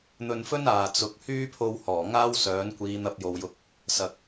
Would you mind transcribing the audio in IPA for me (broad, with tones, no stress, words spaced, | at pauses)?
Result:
n̪ɵ˧nfɵ˥n aː˨ t͡sʊ˨˥k̚ hyː˥pʰo˧w hɔː˨˩ŋaː˥w sœː˨˥nkʷiː˨˧n̪ɐ˧p̚ jo˨wjʊ˧k̚ | sɐ˨k̚